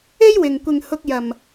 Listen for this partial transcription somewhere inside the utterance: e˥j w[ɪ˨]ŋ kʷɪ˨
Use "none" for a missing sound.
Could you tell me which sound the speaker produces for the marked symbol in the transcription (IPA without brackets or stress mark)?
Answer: ɪ˧